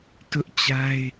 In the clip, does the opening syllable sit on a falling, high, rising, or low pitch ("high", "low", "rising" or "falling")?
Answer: high